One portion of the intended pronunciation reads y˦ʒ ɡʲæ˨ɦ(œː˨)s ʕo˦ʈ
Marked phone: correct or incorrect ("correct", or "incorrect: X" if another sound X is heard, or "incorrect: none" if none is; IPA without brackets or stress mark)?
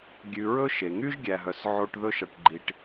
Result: incorrect: œ˨